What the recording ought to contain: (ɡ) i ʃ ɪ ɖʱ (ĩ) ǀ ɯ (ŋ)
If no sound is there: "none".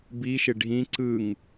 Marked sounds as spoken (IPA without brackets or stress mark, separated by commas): b, ĩ, ŋ